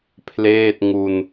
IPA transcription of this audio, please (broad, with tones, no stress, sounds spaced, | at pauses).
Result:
pʰ l eː˥˩ t̚ ŋ u˧ n